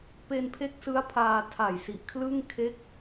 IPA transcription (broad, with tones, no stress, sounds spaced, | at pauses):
p e˧ n pʰ e˦˥ k̚ s ɯ˦˥ a̯ pʰ aː˧ tʰ a˨˩ j s i˨˩ ʔ kʰ l ɯ˥˩ ŋ kʰ e˦˥ k̚